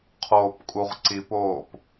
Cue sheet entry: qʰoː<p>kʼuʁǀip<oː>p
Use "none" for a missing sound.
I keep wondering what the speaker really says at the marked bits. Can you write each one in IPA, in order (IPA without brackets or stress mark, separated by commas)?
p, oː